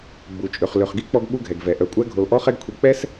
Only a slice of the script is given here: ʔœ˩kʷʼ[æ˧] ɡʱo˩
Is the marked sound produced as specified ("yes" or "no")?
yes